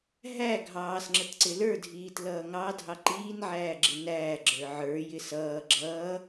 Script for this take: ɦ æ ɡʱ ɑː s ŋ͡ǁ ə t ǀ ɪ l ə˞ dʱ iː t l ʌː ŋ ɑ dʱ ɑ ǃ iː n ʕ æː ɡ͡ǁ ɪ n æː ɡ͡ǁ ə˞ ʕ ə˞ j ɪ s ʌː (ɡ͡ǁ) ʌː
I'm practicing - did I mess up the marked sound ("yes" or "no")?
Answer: no